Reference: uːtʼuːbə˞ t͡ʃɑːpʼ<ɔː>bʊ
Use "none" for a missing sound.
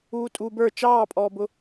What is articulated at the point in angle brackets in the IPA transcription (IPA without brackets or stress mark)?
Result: ɔː